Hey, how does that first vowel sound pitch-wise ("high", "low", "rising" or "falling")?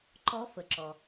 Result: rising